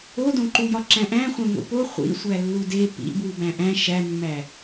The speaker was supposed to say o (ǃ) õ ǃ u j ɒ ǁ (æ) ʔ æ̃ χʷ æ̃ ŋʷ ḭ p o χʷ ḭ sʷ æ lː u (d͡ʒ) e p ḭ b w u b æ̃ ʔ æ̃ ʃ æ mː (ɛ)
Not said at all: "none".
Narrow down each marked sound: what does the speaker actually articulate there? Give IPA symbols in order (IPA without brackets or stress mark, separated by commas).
d, æ̃, d, æ